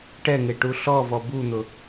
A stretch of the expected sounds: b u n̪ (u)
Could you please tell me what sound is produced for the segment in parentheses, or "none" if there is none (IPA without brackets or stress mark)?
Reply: ʊ